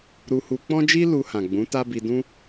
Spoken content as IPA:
ɾ u˧ h u˧ k͡p ɔ̃˦ d͡ʒ i˦ l u˧ h ã˨ ɡ͡b ũ˨˦ t a˦ b i˧ d ũ˦

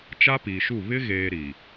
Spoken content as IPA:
t͡ʃ a˦ p iː˨ ʃ u˦˨ β ɪ˦ ɣ eː˨ ɾ i˨

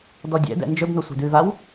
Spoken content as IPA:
d ɔ dʲ ɛ̰ d ɛ̰ n d͡ʒ ɵ b n o sʷ ɛ̤ d ʉ v a w

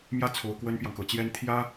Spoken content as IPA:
m j ä˥˩ t͡sʰ o˨˩ ʊ̯ k w ə˥ n p j ɑ˨ ŋ k ɤ˨˩ t͡ɕ j ɛ˥ n t̪ʰ j ä˥

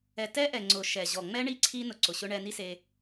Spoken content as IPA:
ɛ˨ t ɛ˦ ʔ ɛ˨ ŋ͡ǀ ʊ˨ ʃ ɛ˨ ʑ ɔ˨ ŋ͡m ɛ˦ ɳ i˦ ǀʰ i˦ n ʊ˧ ǀ ʊ˨ ɕ ʊ˦ ɳ ɛ˧ n i˦ s e˧

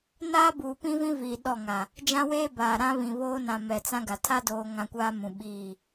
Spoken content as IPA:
n aː˦ b uː˨ p ĩ˦ v ĩ˦ v iː˨ ɗ ɔ˦˨ ŋ a˨ | d͡ʒ ã˦ w eː˦ b aː˨ ɾ ã˦ β ĩ˨ β oː˦ n ã˨ m ɛ˨ t͡s ã˦ ɡ a˨ tʰ a˦ d oː˨ ŋ ã˦ kʷ aː˦ m ũ˨ ɓ iː˦˨

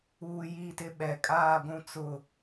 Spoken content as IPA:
uː˨ j i˦˨ t ɪ˦ ɓ ɛ˨ kʼ aː˦˨ ɡʷ ũ˦ t͡s ʊ˦˨

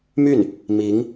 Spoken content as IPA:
m y˥˩ n | m i˧˥ ŋ

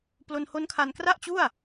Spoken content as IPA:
p l o˧ n h o˦˥ n kʰ a˧ n k r a˥˩ ʔ t͡ɕ u˥˩ a̯

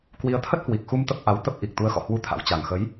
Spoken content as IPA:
k w i˨˦ ə̯ t̪ʰ ə˦˥ t̚ h w i˨˩ k̚ x u˧ m t̪ ə˦˥ p̚ ʔ a˨˦ w t̪ ə˦˥ p̚ ʔ i˨˩ k̚ t̪ u˨˦ ə̯ x ɔ̰˧˨ h w u˧ t̪ʰ a̰˧˥ w t͡ɕ a˨˩ ŋ x ə˨˦ j

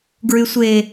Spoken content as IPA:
ɡ ɹ y sʷ e

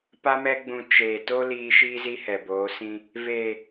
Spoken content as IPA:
p a˦ m ɛ˦ ɡ͡b ũ˧ t͡ʃ eː˨ t o˦ l iː˧ ʃ iː˦ z i˦ h ɛ˨ b oː˨˦ s ĩ˧ | v eː˨

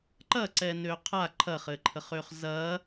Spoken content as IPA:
ǃ ɐ ǀ ɛ n ø qʰ a ǃʰ ɐ χ ɘ ǃʰ ə χ ø χ z ɐ

